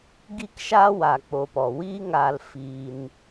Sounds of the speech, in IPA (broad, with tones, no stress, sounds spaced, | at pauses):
ɡ i˦ k ʃ a˦ w a˧ k͡p o˧ p ɔ˨ w i˦ ŋ aː˧ l f iː˧ n